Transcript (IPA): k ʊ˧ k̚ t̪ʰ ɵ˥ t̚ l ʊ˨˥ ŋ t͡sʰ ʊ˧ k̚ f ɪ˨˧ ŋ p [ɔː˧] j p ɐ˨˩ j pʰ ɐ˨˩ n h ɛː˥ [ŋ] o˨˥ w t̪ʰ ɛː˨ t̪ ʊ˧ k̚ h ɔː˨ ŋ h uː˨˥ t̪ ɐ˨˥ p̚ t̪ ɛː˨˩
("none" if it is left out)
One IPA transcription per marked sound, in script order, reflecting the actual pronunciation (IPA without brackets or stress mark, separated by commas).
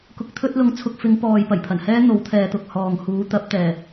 ɔː˨, n̪